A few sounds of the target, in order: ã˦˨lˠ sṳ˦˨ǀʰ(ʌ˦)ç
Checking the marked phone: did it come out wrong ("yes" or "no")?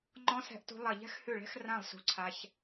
yes